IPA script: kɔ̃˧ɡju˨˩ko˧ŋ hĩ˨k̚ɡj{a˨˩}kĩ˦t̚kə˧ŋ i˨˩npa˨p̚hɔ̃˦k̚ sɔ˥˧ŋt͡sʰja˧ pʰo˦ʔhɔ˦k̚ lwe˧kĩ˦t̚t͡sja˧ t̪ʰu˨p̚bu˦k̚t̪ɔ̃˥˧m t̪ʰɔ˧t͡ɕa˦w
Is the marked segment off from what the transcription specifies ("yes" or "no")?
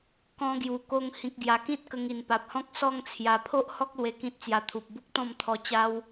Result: no